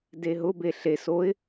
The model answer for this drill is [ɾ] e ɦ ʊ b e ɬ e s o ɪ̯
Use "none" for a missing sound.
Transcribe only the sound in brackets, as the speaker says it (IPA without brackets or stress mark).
d